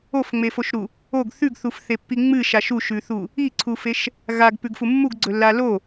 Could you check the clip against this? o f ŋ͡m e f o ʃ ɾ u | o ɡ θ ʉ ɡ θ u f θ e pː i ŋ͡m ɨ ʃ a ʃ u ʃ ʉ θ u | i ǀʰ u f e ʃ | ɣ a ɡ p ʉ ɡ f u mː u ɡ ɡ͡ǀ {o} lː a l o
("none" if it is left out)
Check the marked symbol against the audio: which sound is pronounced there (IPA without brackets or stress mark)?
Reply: ɵ